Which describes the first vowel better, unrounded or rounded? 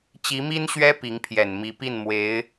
unrounded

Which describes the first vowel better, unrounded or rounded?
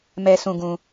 unrounded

